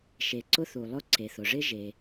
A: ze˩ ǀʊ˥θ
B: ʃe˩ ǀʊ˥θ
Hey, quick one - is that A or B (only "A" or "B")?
B